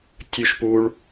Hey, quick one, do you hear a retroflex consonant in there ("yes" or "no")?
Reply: yes